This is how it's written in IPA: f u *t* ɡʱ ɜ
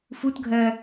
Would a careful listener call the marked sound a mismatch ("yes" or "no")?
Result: no